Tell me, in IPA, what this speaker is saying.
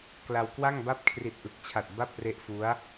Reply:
k l a˧ w k w a˥˩ ŋ b a˥˩ p̚ kʰ r i˨˩ t̚ ʔ ɯ˨˩ k̚ t͡ɕʰ a˨˩ t̚ b a˥˩ p̚ r e˦˥ ʔ f u˦˥ a̯

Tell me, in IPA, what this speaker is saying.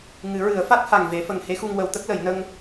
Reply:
ŋ ɨ˨˩˦ ɹ ɨ˨˩˦ ə̯ f a˦˥ t̚ h a˨˩ ŋ v e˨˩˦ f ə˨˩ ŋ h e˧˥ x u˧ ŋ w ə˨˩˦ w t̪ ə˦˥ k̚ l ə˨˩˦ j n ə˧ ŋ

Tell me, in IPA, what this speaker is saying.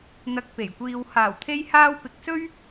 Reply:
n̪ ɐ˧ k̚ p e˨˩ j kʷ iː˧ w h aː˨˩ w t̪ʰ e˧ j h aː˧ w p ɪ˨˥ k̚ s ɵ˥ ɥ

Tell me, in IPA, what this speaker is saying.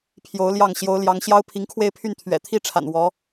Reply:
pʰ j o˧˥ ʊ̯ l j ɑ˥˩ ŋ ɕ j o˧˥ ʊ̯ l j ɑ˧˥ ŋ ɕ j ɑ˥ ʊ̯ pʰ i˧˥ ŋ kʰ w e˥˧ ɪ̯ pʰ y˥˩ n t̪ʰ ɥ ɛ̰˨˩ t̪ʰ i˥ ʈ͡ʂʰ a̰˨˩ n w ɔ˧˥

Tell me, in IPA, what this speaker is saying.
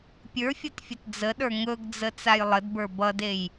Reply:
pʲ ə˞ fʲ ʌ t fʲ ə t d͡z ə ɗ ə˞ ŋ ɵ ɡ d͡z ə t͡s a j lˠ ə d b ə˞ b ʌ d e j

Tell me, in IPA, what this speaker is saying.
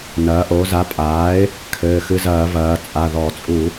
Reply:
n ɐː˩˧ ʔ o˩˧ z a˩˥ pʼ aː˩˥ ɪ̯ | kʰ ɘː˩˧˩ x ɨ˧ z ɐː˧˩˧ v ɐː˩˧ t͡sʼ a˩˧˩ ð ɔ˧˩˧ t͡sʼ u˧˩˧

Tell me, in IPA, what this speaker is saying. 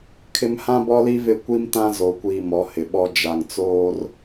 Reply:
kʰ ɪ˦ m h ã˦ b ɔ˦ l i˦ v ɪ˦˨ kʷ i˦ m t ã˦ z o˨ kʷ iː˨ m ɔ˨˦ h ɪ˨ ɓ ɔ˦ d͡ʒ a˨ ŋ t͡s oː˦ r

